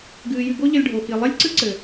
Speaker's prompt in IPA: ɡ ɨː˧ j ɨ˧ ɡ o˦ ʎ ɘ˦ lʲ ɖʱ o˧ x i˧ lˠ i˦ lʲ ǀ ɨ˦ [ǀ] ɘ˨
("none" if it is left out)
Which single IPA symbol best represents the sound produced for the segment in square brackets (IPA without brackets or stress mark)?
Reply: ǀ